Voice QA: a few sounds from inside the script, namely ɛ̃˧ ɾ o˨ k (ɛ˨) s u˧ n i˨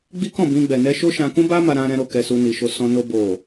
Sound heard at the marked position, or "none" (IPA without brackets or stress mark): ɛ˨